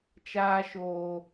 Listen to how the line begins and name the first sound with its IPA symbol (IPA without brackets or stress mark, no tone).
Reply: t͡ʃ